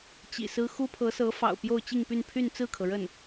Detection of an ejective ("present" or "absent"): absent